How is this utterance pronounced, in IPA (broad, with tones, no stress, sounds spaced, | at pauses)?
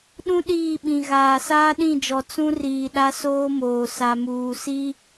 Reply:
ɗ ũ˦ ɗ iː˦˨ ɓ ĩ˨ ɣ aː˨ s aː˦ ɗ ĩ˦˨ d͡ʒ ɔ˨ t͡s ũ˦ r iː˨ ɗ a˦ s oː˦ m oː˨ s a˨ m uː˨ s i˦